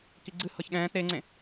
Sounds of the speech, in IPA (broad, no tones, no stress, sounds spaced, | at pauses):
k i ɡ͡ǀ ɨ h ɤ ç ɠ ɛ̃ː t ɾ e ŋ͡ǀ ẽ